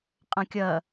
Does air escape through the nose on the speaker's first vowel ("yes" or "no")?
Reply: yes